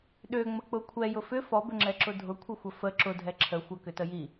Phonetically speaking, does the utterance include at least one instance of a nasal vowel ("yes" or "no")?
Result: no